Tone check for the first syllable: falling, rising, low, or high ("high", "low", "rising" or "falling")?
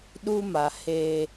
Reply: high